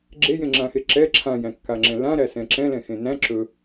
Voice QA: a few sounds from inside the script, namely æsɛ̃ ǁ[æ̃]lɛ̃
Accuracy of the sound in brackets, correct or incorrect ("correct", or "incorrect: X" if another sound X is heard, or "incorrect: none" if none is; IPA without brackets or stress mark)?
incorrect: ɛ̃